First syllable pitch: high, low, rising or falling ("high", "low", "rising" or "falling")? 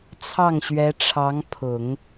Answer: falling